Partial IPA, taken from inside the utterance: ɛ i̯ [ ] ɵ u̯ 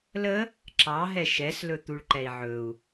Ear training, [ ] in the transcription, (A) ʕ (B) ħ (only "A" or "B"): A